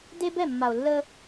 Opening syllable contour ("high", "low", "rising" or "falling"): high